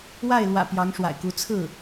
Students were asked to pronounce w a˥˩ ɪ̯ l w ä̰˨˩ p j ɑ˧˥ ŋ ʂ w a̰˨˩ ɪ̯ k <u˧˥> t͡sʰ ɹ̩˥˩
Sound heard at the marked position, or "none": u˧˥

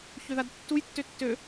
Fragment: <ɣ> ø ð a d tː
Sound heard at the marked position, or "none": ç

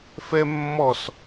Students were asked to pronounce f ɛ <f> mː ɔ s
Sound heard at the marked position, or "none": none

